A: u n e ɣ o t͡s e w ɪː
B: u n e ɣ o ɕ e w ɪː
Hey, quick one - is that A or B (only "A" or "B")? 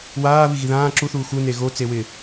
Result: A